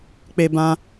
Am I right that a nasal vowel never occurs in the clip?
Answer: no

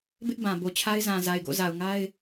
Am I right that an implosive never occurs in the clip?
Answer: yes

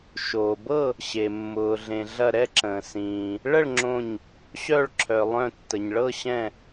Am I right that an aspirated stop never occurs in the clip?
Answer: no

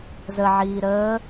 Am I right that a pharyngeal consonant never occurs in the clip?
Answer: no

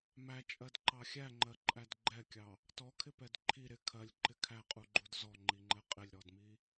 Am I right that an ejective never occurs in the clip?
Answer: no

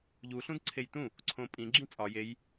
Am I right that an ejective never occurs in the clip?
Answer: no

